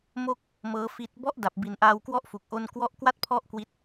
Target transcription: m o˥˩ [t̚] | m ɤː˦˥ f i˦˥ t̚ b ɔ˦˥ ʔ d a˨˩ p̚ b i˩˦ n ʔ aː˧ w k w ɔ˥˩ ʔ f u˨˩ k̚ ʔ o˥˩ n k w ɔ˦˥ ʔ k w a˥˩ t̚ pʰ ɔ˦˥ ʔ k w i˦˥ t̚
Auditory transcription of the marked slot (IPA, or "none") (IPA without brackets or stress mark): k̚